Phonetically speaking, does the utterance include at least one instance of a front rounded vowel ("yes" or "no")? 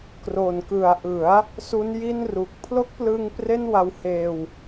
no